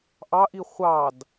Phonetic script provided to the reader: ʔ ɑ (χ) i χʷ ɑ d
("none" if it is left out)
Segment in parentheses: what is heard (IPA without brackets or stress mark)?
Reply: ʔ